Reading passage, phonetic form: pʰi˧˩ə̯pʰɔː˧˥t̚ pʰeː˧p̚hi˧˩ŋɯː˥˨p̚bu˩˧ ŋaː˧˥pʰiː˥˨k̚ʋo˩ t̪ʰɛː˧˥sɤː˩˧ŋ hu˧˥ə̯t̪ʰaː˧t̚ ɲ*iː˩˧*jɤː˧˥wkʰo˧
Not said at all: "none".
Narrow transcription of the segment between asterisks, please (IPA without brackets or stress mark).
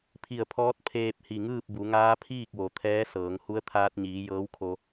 iː˩˧